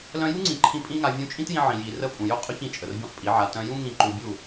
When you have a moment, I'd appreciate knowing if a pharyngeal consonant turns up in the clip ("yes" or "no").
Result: yes